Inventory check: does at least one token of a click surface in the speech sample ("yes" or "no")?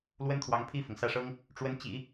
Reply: no